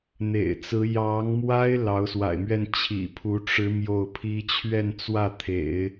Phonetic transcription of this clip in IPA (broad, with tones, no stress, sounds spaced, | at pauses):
n̪ ḛ˨˩ ɪ̯ t͡s ɹ̩˧˥ j ɑ˧˥ ŋ m w a˥ ɪ̯ l ɑ˧˥ ʊ̯ s w a̰˨˩ ɪ̯ m ɥ ɛ˥˩ n t͡ɕʰ ḭ˨˩ pʰ u˧˥ ʈ͡ʂ ɻ̩˧˥ m j o˥˩ ʊ̯ pʰ i˥ t͡ɕʰ ɥ ɛ˥˧ n t͡s w ä˥˩ t̪ʰ ḛ˨˩˦ ɪ̯